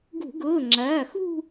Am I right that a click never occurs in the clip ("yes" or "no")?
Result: no